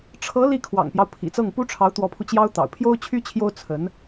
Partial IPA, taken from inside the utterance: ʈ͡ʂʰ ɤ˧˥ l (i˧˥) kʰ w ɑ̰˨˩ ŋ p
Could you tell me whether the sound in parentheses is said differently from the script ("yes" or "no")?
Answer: yes